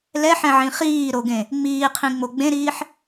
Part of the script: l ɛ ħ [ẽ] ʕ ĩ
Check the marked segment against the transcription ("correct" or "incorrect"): incorrect